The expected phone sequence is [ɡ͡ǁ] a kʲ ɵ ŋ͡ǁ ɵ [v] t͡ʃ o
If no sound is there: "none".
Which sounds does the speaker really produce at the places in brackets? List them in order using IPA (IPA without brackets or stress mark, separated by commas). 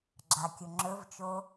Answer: ɡ͡ǁ, v